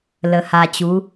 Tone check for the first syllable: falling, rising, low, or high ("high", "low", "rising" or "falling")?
low